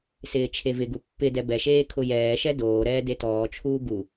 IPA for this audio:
s ɪː t͡ʃʰ e v ɪ ɡ u pː ɪ d ɛ b ɛ ʃ eː kʰ ʊ j ɛː ʃ ɛ d oː ɾ ɛː d e t ɔː t͡ʃʰ uː ɡ u

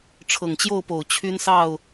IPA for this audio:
ʈ͡ʂʰ ɤ˨˩ ŋ t͡ɕ j o˥˨ ʊ̯ p o˨˩ ʊ̯ t͡ɕʰ y˦ n s ɑ˥˨ ʊ̯

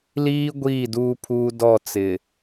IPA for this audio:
l iː˦ ɡʷ iː˦˨ d uː˦ pʰ uː˦ d ɔ˦˨ t͡s ɪ˨

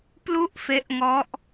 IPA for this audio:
p l u˥˩ ʔ f e˦˥ ʔ ŋ ɔ˦˥ ʔ

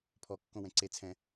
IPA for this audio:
pʰ ɔ kː õ w ɛ̃ ǀ e t͡sʰ ɛ̃

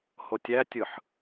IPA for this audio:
h o tʲ æ tʲ ɯ ħ

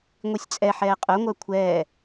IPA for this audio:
ŋʷ i sʲ t͡sʼ ɛ ħ ɛː qʼ œ ŋʷ œ kʷʰ ɛː

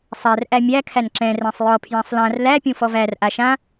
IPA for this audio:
sˤ æ r ʔ æ mʲ æ kʰ æ n ǁ ɛ̃ r æ̃ sˤ j ɔ pʰ j ã sˤ l ã r l æ pʲ ũ f ɔ v æ r ʔ a ʃ ã

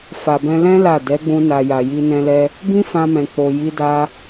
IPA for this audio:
f a˨ b ɛ̃˧ l ɛ̃˦ l a˦˨ d ɛ˨˦ ɡ͡b ũ˧ n a˨ j a˨ j i˧ n ɛ̃˧ l ɛ˧ | b ĩ˦ f ã˧ m ɛ̃˨ k͡p o˨ j i˧ d a˧

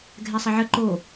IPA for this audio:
ɡʱ ɛ sˤ ə ʕ ə ǃ o

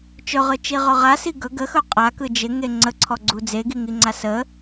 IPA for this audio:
t͡ʃ ɵ ʁ ɯ t͡ʃ i ʁ ɵ ʁ a s i ɡ ɵ ɡ ə x ɵ qʼ a k ɯ d͡ʒ ɪ ŋ e ŋ͡ǀ ə ǀʰ ɔ ɡ͡ǀ u d͡z e ɡ i ŋ i ŋ͡ǀ a s ə

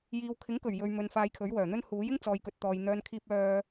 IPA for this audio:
j iː˨ w kʰ ɪ˨˥ ŋ k ɵ˨˩ ɥ j ɵ˨ ɥ m ɵ˨ n f aː˧ j kʰ ɵ˨˥ ɥ w œː˨˩ n̪ ɵ˥ n h uː˨˥ j ɪ˥ ŋ t͡s ɔː˨ j k ɵ˨ t̚ t̪ ɔː˨ j n̪ œː˧ n kʰ iː˧ p̚ œː˧

